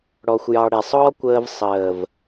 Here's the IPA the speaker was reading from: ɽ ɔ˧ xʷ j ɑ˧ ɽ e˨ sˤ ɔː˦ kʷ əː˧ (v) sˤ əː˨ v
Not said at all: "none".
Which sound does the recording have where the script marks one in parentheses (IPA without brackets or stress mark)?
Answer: v